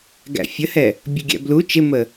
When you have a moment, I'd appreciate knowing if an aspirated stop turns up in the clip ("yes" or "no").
no